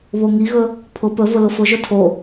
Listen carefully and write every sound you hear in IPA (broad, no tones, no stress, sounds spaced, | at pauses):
β o ŋ i ɣ ɵ | pʰ ʊ p ɵ v ʊ l ʊ f ʊ ʒ ɵ tʰ o